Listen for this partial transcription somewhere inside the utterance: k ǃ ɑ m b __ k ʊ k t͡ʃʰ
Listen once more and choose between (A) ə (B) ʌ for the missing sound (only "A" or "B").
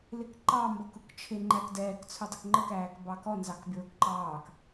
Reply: B